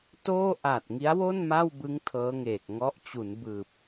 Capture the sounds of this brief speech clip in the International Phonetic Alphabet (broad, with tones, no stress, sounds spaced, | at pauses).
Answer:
t oː˥˩ ʔ a˨˩ t̚ ŋ i˦˥ a̯ w o˥˩ n m a˥˩ w b ɯ˦˥ ŋ tʰ ɤː˦˥ ŋ eː˨˩ k̚ ŋ ɔ˦˥ ʔ t͡ɕ u˩˦ n b ɯː˨˩ p̚